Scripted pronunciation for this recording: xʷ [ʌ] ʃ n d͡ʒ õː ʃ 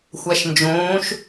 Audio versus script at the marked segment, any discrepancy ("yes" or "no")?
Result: yes